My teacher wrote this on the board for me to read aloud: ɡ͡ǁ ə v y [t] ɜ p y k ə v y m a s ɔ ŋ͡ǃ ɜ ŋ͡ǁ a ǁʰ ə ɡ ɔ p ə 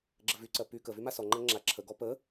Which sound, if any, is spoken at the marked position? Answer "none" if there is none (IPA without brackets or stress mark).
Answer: ǀ